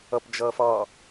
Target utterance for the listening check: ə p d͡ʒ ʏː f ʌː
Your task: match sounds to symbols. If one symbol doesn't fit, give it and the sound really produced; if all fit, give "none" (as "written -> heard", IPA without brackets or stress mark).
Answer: ʏː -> əː